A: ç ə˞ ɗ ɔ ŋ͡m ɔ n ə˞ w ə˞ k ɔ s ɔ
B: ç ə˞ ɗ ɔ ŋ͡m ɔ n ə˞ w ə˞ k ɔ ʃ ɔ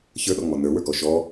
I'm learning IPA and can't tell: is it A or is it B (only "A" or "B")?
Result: B